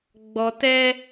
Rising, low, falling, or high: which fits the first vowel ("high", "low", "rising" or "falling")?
low